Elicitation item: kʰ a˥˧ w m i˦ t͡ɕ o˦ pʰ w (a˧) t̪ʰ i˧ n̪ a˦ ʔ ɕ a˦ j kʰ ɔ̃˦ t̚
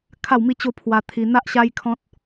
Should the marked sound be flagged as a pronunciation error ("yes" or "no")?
no